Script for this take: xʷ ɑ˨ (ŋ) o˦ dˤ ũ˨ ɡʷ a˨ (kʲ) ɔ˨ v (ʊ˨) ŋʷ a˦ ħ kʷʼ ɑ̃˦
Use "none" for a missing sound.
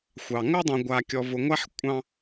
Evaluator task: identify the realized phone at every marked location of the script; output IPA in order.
ŋ, kʲ, ʊ˨

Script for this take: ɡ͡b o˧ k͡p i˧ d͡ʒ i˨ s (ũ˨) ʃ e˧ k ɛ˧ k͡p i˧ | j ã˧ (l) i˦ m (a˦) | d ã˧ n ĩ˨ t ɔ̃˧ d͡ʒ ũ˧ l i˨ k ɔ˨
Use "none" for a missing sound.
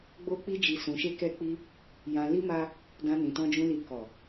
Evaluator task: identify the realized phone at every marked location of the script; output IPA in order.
ũ˨, l, a˦

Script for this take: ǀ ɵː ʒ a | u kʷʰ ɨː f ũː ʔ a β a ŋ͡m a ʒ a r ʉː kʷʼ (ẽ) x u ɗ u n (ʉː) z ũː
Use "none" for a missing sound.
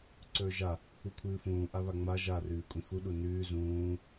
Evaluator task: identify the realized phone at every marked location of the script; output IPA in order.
ĩ, ʉː

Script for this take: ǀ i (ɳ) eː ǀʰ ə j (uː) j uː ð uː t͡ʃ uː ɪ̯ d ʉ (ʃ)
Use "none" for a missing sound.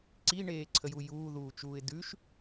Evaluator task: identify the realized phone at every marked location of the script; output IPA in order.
ɳ, u, ʃ

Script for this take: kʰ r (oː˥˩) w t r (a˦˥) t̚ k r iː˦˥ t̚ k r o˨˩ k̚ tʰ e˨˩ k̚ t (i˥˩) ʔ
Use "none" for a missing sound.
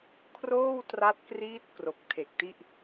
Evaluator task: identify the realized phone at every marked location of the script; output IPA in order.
oː˥˩, a˦˥, i˥˩

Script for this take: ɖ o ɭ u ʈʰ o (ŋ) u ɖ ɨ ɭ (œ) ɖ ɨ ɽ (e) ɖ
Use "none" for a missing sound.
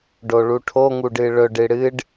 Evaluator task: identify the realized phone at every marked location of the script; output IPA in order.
ŋ, ɵ, ɨ

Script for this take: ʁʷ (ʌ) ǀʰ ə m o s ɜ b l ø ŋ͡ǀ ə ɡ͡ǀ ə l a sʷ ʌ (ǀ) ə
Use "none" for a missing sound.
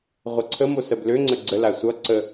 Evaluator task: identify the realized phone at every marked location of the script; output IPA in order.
ʌ, ǀ

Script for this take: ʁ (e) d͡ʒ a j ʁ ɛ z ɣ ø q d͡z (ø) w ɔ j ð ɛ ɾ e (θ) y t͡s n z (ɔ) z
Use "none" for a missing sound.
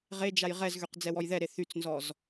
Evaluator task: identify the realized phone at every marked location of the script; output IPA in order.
e, ɛ, θ, ɔ

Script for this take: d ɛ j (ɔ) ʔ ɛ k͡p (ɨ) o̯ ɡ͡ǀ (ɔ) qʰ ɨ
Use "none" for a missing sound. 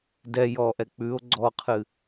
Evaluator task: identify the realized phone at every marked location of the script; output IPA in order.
ɔ, ʉ, ɔ

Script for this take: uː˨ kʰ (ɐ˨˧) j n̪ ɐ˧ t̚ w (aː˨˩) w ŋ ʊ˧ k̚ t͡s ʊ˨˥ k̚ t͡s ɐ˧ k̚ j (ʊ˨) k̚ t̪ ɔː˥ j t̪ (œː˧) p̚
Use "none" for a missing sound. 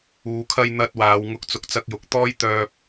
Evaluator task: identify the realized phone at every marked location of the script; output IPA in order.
ɐ˧, aː˨˧, ʊ˨˥, œː˧

